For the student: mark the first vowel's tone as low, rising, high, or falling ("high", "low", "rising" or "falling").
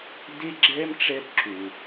high